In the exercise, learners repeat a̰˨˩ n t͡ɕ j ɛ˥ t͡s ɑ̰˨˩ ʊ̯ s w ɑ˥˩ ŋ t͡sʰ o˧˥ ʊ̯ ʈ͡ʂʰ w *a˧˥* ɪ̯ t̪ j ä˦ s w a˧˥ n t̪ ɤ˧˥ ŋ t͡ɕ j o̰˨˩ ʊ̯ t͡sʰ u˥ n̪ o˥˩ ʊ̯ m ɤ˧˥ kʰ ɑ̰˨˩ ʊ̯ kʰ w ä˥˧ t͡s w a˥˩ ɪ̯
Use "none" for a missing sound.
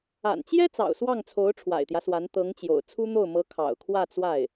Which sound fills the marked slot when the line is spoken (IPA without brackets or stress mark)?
a̰˨˩